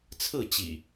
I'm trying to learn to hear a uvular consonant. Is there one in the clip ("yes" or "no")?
no